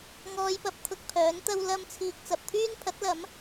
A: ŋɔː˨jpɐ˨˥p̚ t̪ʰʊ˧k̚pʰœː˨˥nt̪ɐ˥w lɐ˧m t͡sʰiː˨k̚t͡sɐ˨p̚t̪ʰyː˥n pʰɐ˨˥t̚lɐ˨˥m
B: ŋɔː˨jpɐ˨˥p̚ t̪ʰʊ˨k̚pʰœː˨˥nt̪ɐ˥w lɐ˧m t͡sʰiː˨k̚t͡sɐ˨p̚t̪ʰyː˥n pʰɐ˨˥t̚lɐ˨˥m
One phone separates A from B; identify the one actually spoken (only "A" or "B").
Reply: A